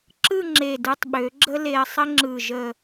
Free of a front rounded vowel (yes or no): no